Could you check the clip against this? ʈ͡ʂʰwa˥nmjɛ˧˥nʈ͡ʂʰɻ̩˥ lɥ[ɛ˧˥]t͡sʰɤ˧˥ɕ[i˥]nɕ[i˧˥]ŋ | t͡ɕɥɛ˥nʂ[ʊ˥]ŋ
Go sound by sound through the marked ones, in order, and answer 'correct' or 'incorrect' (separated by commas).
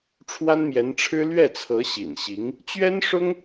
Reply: incorrect, incorrect, correct, correct